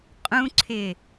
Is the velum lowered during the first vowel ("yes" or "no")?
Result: yes